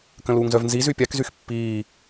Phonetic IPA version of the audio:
k ə̃ l uː ŋ z œ v n z i z y pʲ a k z y x pː iː

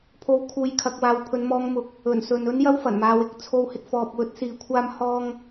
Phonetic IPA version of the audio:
pʰ o˧ w kʰ uː˨˧ j kʰ ɐ˧ k̚ w aː˨ w pʰ ɵ˨˧ n m ɔː˧ ŋ m ʊ˧ k̚ | ɵ˨˩ n s ɵ˨ n ɵ˥ n j ɐ˥ w f ɐ˨˩ n m aː˧ w ɪ˨˥ k̚ t͡sʰ o˥ w h ɪ˧ k̚ f ɔː˨ p̚ w ɵ˥ t̚ s iː˧ kʷʰ aː˥ m h ɔː˥ ŋ

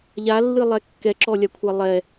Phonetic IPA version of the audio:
ʎ a lː ɨ lˠ ɛ kː ɛ ǁ ɔ lʲ a kʷʰ a lˠ ɛ

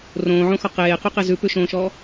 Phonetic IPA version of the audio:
r õː ʕ õ x ɔ q eː q u q e z ʉ p ʉ ʃ õː ʃ ɔ

